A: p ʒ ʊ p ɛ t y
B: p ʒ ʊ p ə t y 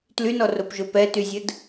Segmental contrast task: A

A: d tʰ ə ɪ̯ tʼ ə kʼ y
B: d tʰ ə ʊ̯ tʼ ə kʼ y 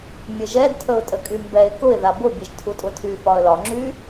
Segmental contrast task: B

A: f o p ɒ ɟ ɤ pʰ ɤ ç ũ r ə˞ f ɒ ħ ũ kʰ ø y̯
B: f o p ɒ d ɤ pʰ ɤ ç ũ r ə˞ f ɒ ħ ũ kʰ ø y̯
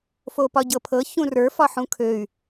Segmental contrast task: A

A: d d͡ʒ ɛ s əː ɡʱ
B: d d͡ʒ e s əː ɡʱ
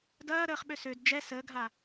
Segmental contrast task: A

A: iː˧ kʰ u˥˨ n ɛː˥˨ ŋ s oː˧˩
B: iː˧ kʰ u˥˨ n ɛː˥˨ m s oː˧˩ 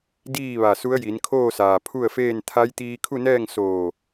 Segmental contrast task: A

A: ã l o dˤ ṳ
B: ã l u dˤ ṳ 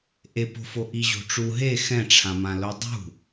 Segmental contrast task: A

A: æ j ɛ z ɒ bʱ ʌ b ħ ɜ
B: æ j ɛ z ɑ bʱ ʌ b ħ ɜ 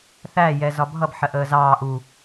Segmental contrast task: A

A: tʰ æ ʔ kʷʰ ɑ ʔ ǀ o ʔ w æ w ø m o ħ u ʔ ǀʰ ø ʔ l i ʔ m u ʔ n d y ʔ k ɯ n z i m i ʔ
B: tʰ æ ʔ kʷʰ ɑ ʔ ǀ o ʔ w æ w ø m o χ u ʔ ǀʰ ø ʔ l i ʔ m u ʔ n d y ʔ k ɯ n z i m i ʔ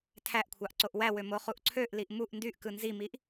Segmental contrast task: B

